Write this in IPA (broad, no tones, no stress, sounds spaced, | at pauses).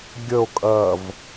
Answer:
ɡʲ ə o̯ kʼ ɐ v